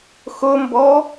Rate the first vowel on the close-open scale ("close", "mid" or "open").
close